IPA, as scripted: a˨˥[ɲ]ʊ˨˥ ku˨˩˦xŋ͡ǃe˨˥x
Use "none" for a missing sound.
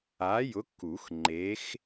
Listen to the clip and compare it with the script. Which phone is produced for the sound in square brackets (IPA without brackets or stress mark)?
j